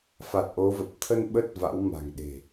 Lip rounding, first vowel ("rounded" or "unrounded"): unrounded